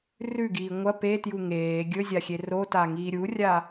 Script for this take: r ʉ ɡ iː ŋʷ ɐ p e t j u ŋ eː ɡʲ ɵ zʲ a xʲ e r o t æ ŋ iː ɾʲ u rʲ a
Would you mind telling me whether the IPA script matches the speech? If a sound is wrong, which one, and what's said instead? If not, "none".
æ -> a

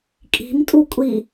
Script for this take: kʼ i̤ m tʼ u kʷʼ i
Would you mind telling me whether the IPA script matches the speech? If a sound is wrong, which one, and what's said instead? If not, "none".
none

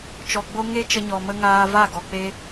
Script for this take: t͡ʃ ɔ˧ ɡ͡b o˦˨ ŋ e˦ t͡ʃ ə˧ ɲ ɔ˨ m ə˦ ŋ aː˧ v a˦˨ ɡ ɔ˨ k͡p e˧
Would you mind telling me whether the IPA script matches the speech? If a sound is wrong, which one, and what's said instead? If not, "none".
o˦˨ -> o˦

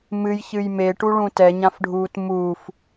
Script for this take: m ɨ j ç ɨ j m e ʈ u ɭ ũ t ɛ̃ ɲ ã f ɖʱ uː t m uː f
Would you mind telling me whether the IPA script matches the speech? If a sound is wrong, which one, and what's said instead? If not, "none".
ɛ̃ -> ɛ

